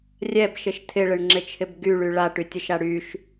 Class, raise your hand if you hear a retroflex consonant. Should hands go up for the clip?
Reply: yes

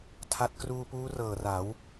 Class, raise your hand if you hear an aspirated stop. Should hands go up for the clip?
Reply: yes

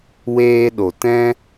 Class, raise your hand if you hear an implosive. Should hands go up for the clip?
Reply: yes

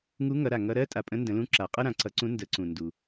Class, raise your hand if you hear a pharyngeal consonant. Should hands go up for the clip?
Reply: no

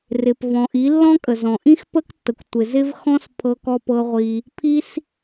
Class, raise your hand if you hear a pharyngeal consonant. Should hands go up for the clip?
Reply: no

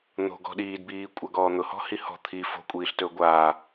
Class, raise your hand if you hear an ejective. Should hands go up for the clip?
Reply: yes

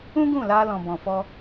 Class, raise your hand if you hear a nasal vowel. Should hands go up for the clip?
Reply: yes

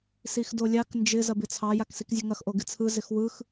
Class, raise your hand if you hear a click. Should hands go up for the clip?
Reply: no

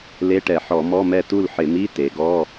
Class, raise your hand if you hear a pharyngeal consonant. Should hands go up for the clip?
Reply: yes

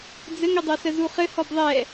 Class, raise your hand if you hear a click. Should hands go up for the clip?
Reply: no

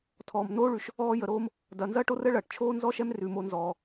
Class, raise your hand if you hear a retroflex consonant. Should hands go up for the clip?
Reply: yes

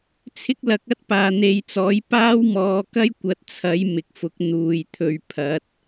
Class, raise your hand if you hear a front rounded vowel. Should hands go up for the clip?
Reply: no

